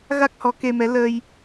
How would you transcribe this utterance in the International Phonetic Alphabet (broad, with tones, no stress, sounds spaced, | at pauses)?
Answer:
ɣ a˦˥ k̚ h ɔ˨˦ k e˧ m ɛ˨˦ l ə˧ j